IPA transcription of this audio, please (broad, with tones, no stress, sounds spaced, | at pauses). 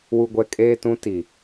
w u˨ ɡʷ ɛ˨ kʼ eː˦ t ũ˦ t i˨